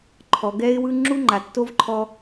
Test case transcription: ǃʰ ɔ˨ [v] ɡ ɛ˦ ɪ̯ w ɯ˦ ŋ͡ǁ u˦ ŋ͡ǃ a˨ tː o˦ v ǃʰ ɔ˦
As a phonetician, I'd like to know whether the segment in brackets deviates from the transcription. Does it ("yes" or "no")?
yes